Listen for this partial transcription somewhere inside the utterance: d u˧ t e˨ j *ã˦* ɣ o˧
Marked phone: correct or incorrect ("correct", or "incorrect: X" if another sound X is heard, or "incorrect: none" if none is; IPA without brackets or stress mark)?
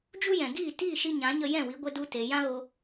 correct